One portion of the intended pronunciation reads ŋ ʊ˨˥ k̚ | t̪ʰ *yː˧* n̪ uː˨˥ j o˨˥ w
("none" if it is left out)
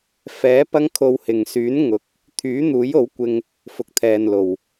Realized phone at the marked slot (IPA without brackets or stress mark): yː˨˥